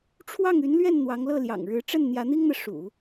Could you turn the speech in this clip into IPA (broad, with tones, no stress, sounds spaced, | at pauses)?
ʈ͡ʂʰ w ɑ˥˩ ŋ y˧˥ n l ɥ ɛ˥˩ n n̪ w ɑ˧˥ ŋ l ɤ˥˩ l j ɑ̰˨˩ ŋ ɻ ɻ̩˧˥ ʈ͡ʂ ə˥˩ n n̪ j ä˧˥ n̪ i˥ ŋ n̪ ɤ˨ ʂ ṵ˨˩˦